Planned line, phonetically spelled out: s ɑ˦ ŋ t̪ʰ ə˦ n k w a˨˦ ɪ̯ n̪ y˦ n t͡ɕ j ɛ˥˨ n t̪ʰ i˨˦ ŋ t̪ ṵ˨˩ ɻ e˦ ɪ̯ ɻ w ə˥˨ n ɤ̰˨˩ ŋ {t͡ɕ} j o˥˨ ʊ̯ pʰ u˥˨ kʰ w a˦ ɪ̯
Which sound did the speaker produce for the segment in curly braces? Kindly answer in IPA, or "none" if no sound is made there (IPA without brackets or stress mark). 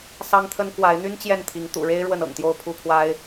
t̪